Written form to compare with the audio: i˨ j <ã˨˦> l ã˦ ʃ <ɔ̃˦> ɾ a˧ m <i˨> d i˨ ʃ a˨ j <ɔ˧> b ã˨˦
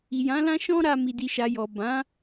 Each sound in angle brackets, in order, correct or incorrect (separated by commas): correct, correct, correct, incorrect